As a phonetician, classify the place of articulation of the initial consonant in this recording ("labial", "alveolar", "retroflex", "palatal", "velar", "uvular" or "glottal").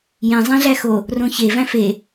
palatal